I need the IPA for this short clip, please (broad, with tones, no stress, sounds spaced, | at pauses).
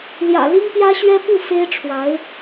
l j ä̰˨˩ l i˥ ŋ p j ä˥ ɕ ɥ ɛ˥ p u˥˩ f e˥ ɪ̯ ʈ͡ʂʰ w a˧˥ ɪ̯